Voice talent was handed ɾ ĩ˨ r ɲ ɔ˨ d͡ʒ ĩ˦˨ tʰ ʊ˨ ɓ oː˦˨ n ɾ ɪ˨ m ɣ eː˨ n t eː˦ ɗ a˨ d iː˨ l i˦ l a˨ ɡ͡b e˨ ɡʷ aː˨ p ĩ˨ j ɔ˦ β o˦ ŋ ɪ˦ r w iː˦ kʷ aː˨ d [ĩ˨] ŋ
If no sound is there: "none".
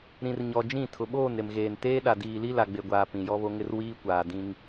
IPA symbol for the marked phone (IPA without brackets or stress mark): ĩ˦